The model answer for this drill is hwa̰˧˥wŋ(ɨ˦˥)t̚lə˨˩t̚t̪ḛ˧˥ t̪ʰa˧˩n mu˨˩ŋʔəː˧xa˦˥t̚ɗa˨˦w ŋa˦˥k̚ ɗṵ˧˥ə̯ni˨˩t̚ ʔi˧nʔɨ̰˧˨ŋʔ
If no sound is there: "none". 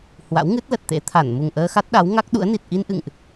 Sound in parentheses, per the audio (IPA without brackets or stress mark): ɨ˦˥